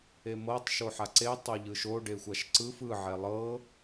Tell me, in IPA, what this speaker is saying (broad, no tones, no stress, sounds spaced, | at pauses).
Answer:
e m ɤ tˤ ʃ o ħ a ǀ e tˤ o ʎ ɯ ʃ o ɖ e xʷ a ʃ ǀ ɯ f ɯ ʕ ɛ lˠ ɤ